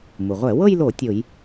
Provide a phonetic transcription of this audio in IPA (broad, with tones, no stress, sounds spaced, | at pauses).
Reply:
m u˩ ʁʷ ɛ˧˩˧ w ɤ˥˧ j l o˧˩˧ tʲ o˧˩˧ j